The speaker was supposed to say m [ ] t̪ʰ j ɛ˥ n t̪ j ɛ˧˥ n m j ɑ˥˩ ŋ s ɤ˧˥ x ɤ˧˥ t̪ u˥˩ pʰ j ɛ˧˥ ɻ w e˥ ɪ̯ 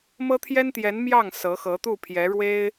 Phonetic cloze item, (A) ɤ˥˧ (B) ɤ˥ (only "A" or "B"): B